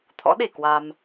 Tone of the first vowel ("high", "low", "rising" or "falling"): rising